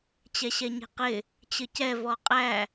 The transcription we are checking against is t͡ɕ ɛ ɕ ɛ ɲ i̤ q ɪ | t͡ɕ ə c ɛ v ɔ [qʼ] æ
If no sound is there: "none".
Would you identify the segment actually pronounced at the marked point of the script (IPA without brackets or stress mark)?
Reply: qʼ